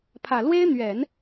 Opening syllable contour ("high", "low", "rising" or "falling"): low